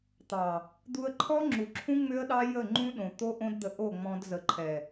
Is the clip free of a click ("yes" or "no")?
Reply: no